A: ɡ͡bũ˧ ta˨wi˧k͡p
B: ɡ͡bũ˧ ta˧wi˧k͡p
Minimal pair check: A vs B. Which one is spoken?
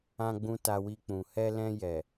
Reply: B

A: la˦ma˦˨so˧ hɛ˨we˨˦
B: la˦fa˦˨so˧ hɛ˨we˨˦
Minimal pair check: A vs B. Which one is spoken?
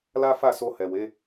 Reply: B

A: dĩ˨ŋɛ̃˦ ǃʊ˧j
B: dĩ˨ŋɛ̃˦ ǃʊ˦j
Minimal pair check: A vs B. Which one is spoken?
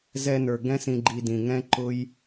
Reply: B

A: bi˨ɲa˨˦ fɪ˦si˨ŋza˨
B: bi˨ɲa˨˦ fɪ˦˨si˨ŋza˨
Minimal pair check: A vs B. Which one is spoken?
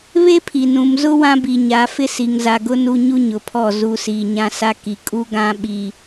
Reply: A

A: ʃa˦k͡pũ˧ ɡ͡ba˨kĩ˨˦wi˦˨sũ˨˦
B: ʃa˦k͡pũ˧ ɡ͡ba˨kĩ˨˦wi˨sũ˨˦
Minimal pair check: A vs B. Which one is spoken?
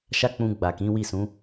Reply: A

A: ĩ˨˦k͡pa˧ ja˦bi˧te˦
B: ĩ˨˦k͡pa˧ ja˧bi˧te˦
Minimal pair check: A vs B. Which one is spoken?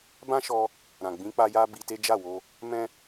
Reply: A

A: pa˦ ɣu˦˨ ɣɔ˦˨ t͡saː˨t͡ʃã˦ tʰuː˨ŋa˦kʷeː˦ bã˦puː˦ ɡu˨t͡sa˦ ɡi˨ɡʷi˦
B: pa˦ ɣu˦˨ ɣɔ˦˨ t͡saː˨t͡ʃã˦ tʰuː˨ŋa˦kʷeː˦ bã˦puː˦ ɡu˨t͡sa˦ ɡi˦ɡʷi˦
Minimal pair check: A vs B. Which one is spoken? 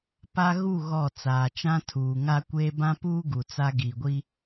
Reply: A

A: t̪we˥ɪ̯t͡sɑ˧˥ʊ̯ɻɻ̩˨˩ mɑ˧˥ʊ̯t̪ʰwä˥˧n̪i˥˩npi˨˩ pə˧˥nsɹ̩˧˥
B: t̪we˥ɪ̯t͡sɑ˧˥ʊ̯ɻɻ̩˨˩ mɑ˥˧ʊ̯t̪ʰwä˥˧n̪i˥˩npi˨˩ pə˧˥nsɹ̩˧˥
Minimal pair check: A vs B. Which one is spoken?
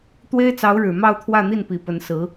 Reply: B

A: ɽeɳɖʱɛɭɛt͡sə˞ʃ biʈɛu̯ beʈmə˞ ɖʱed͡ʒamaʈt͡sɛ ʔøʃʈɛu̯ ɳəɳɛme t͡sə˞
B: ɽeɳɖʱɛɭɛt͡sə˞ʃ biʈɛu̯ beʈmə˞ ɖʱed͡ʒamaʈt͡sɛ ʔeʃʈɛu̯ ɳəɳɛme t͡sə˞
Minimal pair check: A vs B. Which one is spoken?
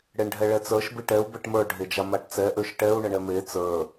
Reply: A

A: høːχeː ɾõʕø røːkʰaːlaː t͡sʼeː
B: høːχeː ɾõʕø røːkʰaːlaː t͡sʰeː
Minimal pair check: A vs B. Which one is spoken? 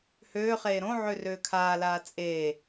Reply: A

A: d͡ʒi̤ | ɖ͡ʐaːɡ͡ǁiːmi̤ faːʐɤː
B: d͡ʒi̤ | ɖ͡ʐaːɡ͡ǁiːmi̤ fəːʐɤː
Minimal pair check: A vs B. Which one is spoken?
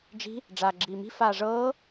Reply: A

